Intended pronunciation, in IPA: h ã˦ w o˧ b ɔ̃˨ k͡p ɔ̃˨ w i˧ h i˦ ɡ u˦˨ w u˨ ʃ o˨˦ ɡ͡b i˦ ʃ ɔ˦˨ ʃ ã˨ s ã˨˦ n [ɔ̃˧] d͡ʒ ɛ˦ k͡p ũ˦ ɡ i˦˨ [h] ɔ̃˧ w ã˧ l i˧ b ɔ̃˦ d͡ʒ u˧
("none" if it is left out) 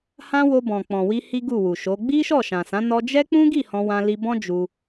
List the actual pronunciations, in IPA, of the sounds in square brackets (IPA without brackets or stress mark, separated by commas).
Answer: ɔ˧, h